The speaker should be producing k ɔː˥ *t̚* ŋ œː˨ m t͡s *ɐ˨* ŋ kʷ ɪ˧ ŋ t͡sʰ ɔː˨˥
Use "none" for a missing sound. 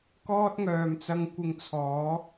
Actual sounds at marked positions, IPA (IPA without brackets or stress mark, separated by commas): t̚, ɐ˧